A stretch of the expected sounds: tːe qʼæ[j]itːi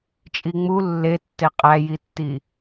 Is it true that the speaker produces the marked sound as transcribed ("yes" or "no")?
yes